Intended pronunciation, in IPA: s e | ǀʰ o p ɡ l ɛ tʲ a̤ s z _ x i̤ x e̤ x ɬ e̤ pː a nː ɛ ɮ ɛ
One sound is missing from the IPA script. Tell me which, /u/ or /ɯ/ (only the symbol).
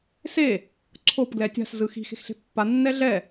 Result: ɯ